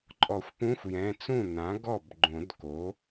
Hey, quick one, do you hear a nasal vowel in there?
yes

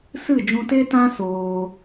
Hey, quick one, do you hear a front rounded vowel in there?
no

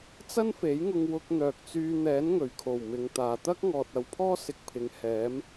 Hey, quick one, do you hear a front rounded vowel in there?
yes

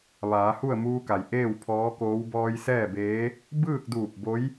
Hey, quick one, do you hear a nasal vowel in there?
no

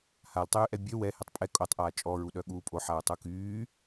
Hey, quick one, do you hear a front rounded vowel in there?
yes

